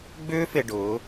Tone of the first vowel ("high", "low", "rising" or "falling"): high